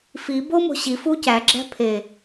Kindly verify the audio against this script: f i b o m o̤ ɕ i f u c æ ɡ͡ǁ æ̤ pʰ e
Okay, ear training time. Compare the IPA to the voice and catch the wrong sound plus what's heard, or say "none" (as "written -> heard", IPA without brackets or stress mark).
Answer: none